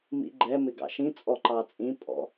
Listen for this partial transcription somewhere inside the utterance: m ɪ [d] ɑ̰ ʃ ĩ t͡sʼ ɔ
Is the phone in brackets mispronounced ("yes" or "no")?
yes